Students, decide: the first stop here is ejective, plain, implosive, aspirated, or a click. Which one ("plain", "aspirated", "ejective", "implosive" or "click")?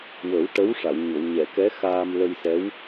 plain